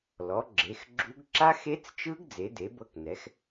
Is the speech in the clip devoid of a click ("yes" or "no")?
no